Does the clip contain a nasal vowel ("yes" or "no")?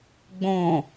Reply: yes